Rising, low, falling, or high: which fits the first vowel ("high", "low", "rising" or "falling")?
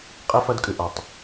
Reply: high